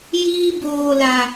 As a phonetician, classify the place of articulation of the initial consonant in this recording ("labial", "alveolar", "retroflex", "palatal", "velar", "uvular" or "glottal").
palatal